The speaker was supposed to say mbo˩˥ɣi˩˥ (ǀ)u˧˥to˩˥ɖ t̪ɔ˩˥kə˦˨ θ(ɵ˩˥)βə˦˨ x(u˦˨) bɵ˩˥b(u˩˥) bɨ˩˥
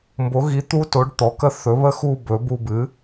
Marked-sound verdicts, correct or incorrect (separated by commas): incorrect, correct, correct, incorrect